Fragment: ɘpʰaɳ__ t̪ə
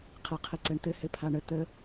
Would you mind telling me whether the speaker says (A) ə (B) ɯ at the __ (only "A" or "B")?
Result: A